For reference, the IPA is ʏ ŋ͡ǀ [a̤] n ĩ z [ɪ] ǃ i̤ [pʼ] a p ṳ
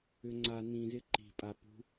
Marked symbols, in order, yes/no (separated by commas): no, yes, yes